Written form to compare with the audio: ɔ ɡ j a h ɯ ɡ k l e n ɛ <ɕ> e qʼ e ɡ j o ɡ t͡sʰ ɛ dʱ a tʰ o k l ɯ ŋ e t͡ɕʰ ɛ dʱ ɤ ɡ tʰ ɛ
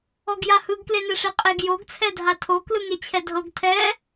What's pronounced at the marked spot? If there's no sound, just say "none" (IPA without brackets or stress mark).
ʂ